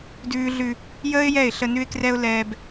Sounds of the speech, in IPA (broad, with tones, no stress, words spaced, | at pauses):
dʉː˦ɮʉ˦ | jəː˦ɪ̯jɛ˦˨ɪ̯ɬə˦ nʉ˦ɪ̯krɛ˦ʊ̯ lɛː˦b